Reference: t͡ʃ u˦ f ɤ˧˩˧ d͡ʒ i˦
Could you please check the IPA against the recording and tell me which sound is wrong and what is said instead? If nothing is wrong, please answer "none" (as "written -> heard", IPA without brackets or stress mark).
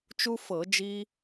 none